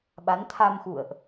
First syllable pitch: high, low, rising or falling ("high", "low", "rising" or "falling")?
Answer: rising